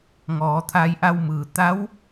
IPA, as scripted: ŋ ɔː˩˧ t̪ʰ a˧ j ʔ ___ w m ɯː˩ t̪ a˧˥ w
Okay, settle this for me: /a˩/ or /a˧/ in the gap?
a˧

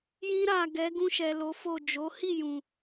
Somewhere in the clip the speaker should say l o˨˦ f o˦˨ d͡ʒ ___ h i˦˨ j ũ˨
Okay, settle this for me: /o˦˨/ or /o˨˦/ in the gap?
o˨˦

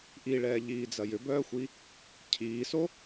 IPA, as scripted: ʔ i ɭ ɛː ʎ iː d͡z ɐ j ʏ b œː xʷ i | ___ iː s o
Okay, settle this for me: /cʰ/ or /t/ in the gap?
cʰ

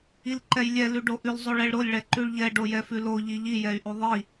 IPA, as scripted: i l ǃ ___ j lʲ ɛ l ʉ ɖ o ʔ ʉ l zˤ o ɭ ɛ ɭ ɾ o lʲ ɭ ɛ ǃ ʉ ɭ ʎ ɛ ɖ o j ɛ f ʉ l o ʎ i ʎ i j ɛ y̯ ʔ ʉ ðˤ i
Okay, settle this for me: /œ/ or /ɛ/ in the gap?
ɛ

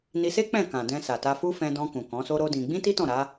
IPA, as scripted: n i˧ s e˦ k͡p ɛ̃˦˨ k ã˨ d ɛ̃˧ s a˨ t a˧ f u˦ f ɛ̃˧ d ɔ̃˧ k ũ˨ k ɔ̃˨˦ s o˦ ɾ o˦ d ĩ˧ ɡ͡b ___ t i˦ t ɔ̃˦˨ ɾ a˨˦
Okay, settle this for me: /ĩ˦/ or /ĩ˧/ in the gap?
ĩ˦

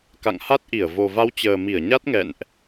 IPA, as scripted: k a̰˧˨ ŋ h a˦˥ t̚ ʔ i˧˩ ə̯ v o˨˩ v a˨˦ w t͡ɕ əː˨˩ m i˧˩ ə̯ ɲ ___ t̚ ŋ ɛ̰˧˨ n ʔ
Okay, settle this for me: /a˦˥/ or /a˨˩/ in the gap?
a˦˥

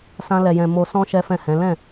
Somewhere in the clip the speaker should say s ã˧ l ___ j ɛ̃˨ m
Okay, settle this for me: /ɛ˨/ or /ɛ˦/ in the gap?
ɛ˨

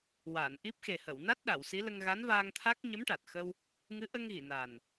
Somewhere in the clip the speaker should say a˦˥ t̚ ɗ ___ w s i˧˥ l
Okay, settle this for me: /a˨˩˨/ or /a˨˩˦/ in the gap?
a˨˩˨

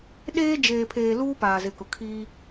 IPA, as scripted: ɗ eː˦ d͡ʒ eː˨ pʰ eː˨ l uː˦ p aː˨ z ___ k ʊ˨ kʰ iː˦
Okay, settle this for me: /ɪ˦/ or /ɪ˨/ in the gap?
ɪ˨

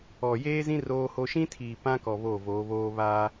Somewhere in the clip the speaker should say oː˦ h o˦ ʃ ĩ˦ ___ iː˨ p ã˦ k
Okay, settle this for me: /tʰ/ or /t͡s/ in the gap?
tʰ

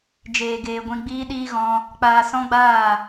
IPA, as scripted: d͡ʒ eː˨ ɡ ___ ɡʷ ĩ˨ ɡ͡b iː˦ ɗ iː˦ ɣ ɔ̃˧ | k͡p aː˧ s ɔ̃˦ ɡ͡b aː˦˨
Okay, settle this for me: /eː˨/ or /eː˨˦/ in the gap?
eː˨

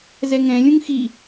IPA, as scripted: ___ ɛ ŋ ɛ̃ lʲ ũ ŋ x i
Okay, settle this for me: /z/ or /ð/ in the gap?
z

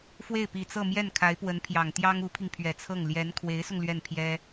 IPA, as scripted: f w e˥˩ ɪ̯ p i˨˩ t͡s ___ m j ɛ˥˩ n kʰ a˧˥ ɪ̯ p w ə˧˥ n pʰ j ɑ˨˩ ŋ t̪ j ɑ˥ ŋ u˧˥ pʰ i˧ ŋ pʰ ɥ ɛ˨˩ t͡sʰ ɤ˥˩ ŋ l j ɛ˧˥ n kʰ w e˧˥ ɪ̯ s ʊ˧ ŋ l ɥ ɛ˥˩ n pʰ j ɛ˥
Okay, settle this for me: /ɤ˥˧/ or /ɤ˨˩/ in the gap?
ɤ˥˧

